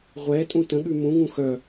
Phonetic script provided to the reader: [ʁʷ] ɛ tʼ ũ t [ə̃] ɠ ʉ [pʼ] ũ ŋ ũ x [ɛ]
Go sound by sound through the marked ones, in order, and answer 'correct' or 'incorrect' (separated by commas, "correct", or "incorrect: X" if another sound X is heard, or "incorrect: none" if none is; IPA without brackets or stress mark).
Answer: correct, correct, incorrect: m, incorrect: œ